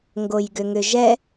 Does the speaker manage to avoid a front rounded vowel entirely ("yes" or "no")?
no